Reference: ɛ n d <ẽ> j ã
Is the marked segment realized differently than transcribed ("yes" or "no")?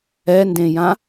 no